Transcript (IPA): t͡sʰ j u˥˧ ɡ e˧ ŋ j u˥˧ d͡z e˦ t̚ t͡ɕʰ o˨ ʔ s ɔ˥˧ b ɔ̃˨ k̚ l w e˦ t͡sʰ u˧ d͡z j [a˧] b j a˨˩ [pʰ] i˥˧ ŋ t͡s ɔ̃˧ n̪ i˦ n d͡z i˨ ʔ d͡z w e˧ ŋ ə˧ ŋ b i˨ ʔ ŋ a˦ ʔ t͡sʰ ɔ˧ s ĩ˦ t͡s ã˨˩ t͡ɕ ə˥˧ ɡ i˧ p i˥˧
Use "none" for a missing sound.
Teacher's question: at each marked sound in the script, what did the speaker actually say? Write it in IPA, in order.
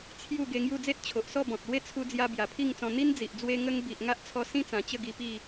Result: a˧, pʰ

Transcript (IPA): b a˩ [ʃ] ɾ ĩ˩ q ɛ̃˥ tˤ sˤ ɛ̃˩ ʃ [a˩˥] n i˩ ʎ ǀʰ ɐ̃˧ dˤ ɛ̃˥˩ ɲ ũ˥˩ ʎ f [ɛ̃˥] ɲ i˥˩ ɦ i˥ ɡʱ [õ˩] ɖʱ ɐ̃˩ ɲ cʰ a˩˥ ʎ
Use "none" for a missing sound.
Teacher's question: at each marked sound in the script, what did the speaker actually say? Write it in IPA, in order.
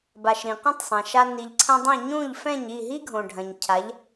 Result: ʃ, a˧, ɛ̃˥˩, õ˩

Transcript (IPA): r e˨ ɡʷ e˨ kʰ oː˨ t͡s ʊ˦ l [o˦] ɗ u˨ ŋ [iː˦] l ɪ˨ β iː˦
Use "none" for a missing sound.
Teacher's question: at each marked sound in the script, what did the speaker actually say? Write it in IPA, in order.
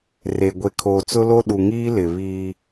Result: o˦, iː˦

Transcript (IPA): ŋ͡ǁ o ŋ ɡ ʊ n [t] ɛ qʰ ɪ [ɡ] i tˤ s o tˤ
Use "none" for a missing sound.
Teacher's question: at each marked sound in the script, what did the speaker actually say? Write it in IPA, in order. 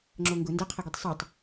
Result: d, ɡ

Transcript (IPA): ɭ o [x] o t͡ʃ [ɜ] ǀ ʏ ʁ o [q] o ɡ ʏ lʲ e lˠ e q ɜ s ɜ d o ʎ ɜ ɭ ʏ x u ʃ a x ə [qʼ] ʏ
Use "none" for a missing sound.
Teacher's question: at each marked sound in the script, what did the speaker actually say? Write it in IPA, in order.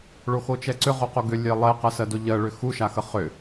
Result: x, ɛ, q, χ

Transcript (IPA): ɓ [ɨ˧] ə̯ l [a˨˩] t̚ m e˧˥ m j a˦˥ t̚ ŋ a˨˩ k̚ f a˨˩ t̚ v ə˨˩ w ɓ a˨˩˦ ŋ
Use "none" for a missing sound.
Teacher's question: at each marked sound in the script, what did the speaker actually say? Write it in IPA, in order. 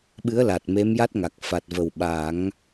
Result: ɨ˧˥, a˨˩

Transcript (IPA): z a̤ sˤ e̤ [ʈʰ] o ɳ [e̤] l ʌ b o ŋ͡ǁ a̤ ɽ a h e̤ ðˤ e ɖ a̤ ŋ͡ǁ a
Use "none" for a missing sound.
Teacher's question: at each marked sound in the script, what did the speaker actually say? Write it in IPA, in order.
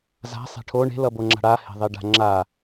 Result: ʈʰ, e̤

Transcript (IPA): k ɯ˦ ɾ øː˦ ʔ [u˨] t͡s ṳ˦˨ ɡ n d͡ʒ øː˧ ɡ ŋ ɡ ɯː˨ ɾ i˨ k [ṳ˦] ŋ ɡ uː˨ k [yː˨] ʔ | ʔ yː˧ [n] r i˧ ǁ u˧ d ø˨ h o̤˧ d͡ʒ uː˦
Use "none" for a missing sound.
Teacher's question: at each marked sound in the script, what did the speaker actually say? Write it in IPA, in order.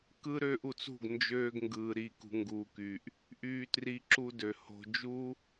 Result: u˨, ṳ˨, yː˨, t

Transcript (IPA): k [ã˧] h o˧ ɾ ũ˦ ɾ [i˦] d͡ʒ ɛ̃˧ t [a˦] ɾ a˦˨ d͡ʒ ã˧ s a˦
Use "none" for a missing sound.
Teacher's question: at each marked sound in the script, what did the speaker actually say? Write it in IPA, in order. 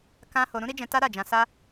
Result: ã˦, i˦, a˦

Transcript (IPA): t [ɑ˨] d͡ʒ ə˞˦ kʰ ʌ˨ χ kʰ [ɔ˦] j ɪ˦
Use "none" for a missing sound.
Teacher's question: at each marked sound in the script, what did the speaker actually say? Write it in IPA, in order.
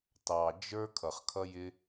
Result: ɑ˨, ʌ˦

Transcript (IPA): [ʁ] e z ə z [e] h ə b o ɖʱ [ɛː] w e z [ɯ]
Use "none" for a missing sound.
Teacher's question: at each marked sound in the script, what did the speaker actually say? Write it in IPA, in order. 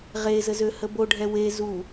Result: ʁ, ø, ɛ, u

